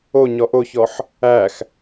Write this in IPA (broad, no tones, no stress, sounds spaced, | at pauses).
o ɲ ɔ ʔ o ç ɔ ħ | æ x